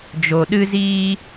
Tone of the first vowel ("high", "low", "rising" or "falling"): low